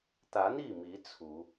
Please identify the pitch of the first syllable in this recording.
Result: rising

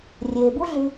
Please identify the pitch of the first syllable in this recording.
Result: low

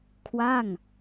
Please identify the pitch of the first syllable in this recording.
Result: falling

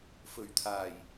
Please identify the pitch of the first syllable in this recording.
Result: low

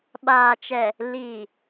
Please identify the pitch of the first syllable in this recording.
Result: low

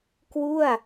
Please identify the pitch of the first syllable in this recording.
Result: falling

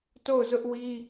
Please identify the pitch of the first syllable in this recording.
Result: falling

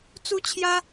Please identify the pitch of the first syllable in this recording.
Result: high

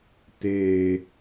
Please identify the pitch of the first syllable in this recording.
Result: low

